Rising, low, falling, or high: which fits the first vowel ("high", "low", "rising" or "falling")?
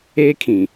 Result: high